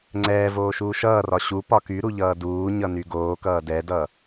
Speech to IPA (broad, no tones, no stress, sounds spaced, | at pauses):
ŋ͡ǀ ɛː v oː ʃ uː ʃ ʌː r ɒ ɕ u p ɒ k y ɾ u ʎ ʌː d uː ɲ ʌ n y ɡ oː k ʌː d ɛ d ʌ